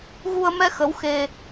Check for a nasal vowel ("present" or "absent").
absent